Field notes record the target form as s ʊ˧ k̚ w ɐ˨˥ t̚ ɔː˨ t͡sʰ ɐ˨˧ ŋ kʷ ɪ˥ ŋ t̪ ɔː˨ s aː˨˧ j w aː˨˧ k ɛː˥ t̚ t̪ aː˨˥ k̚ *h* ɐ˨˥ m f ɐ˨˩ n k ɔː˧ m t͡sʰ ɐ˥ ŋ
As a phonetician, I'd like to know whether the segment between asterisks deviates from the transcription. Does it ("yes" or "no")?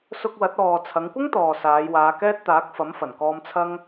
yes